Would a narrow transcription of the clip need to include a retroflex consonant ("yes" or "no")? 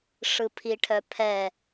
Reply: yes